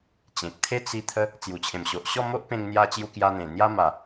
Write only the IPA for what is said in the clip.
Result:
t͡ɕ ẽ˨ k̚ t̪ʰ e˦ t͡s i˧ t̪ʰ ə˦ | t͡s j u˨˩ t͡ɕʰ ẽ˨˩ m ɕ o˨ ʔ ɕ ɔ˥˧ m o˦ ʔ p ẽ˧ ŋ n̪ j a˧ t͡ɕ j u˧ k j a˧ n̪ ẽ˨˩ n̪ j a˦ m a˨˩

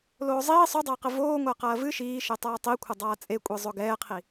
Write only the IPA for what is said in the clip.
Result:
l oː zˤ iː sˤ o dˤ ɐː q ɘ v oː ŋʷ a q ɐː v ɨ ʃ iː ʃ e tˤ aː tˤ i kʷʰ ɘ dˤ aː t͡sʼ e kʷʼ i zˤ o ɡ ɛː qʰ i

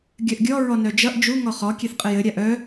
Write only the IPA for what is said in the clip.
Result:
ɡʲ œ ʔ ɡʲ ɔ ɹ ɔ n œ d͡ʒ ʌ ʔ d͡ʒ u ŋ ɔ χ ɔ kʲ e θ qʼ ɘ j ɘ ɾʲ a ʔ œ

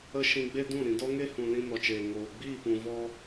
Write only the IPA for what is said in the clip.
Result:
ə˦ ʃ ĩ˧ ɡ͡b e˦ d ũ˦˨ ɾ ĩ˨ d ɔ˦ ŋ e˦ h ũ˨ l ĩ˧ n ɔ˨ t͡ʃ eː˨ ŋ oː˨ ɡ͡b iː˦˨ p ũ˨ v ɔ˧

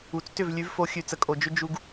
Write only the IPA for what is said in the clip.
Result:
u˨ t͡s t ʏ˦˨ v lʲ ʉ˨˦ v f o˨˦ xʲ ʉ˨ t͡s ə˨ kʼ o˨ d͡ʒ ʏ˦ d͡ʒ u˦ ɡ

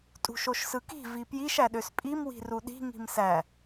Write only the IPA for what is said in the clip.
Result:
tʼ ṳ ʃ o ʃ s ɯ k i̤ v i p j i ʃ æ ɗ ø s pʼ i m w i̤ r u ɗ i̤ ŋ i̤ m s æ

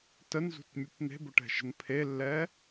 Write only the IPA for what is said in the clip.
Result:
t ə n z ṳ t mʲ u p n̪ e̤ b ʊ ʈ ɛ̤ ʃ ə̤ n pʰ e lː ɛ

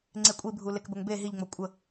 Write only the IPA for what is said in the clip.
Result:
ŋ͡ǀ e kʷʼ i bʱ u l e k b ə ŋ b e ɦ i ʎ ŋ͡m o kʷʼ ə

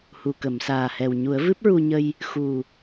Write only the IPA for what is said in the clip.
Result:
h u˨˩ k ə˨˩˨ m s aː˨˩ h ɛ˨˩ w ɲ u˨˩˦ ə̯ v ɨ˦˥ p̚ ɹ u˧ ɲ ə˧ j | x u˨˩

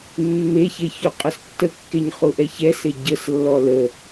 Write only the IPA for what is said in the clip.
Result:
mː e ç e ç u qʼ ə s tː ə kː e ɲ χ u ʔ ɛ ç ɛ s e ɟ ə s lː ɔ l ə

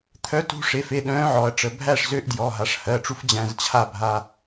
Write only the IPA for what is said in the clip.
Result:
t̪ʰ œ˧˥ t ṳ˧ ʂ e˩˧˩ f e˩˧˩ ɗ œ̃ː˧˥ ʕ ɔ˩˧ ɐ̯ ʈ͡ʂ ə˩˧˩ bʱ æ˥˨ ʂ z ø˧˥ ʔ d j ɔ˩˧˩ ɦ a˩˧ ʂ h ɜ˩˧˩ ʈ͡ʂ u˧˥ f d͡ʑ æ̃˧ z t͡ɕʰ a˥˨ bʱ a˧

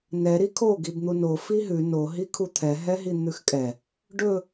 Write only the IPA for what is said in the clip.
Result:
n ɛ ɾ i kʰ o ɡ i b n̪ u n o f i ɦ ʉ n o ɦ i kʰ u t̪ʰ ɛ ɦ ɛ ɦ i n̪ ʉ x kʼ ɛ | ɖ ɵ

